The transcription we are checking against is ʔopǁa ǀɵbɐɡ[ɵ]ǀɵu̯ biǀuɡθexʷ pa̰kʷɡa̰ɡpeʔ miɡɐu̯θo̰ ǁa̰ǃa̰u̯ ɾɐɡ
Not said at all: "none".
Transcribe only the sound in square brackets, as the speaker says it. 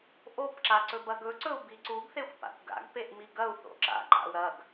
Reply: ɵ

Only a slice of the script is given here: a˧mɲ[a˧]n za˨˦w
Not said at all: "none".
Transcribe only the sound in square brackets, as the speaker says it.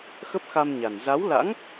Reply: a˨˩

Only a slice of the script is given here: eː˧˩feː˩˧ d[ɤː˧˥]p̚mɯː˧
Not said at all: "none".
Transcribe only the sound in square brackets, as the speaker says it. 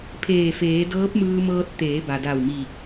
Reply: ɤː˧˥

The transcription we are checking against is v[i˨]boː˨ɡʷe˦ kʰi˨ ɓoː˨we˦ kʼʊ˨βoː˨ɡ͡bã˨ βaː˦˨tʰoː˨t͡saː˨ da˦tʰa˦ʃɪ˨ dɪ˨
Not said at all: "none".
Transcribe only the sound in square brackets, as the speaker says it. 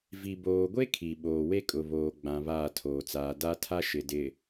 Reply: i˨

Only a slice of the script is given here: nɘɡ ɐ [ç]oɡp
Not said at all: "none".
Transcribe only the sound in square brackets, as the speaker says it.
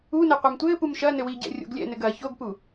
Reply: ç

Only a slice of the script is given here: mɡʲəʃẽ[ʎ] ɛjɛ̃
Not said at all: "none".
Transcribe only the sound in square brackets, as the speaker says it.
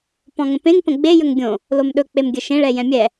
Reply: ɭ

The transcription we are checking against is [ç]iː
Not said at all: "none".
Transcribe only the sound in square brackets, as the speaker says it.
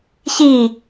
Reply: ç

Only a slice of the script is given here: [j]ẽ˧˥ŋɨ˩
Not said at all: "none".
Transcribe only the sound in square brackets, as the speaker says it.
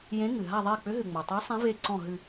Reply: j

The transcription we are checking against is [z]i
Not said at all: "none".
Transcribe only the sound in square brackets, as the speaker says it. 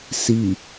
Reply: s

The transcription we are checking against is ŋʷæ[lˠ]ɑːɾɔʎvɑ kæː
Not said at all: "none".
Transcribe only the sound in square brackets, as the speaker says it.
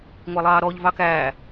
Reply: lˠ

